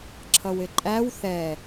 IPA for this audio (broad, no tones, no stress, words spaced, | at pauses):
ǁʰʌwɪǃʼæw θɛ